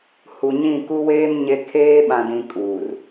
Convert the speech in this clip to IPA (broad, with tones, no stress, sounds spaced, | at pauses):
h u˨ ɲ ĩ˦˨ k u˦ w eː˦ m ɲ e˦ kʰ eː˦ ɓ ã˨ d ĩ˨ kʼ uː˨ r